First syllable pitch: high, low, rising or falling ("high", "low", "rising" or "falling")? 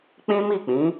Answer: high